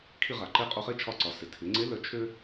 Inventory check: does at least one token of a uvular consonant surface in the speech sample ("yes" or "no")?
yes